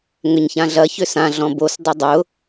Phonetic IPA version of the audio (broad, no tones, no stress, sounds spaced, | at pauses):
ŋ ʏ ɲ ç ã ɮ ɐ ç ʏ s ã ɮ ɔ̃ b o s dˤ o dˤ ʊ